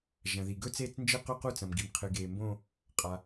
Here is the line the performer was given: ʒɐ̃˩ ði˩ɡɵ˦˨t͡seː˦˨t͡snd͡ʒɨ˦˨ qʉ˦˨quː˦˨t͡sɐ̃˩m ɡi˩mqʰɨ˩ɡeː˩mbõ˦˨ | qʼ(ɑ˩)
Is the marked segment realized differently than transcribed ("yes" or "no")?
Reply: yes